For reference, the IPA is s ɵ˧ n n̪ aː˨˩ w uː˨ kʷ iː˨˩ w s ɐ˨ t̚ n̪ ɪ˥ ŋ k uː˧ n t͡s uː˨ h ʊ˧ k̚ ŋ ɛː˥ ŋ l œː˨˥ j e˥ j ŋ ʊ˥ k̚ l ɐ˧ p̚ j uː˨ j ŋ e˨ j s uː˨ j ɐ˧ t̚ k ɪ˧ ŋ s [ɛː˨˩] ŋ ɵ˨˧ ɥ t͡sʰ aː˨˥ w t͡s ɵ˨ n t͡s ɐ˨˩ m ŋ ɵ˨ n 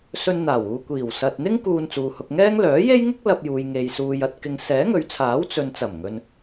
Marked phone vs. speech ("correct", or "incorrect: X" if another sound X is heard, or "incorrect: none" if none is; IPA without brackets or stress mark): incorrect: ɛː˨˥